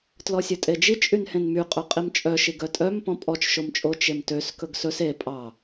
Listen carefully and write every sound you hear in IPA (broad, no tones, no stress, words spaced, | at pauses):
tlɔsʲɵtʼed͡ʒi t͡ʃʼynhẽnmy qʼœqʼimt͡ʃʼœ ʃiɡœtʼœm pɔ̃pʼɔt͡ʃ ʃomt͡ʃʼo t͡ʃemtøs kɵɡsɵs e pʼɑ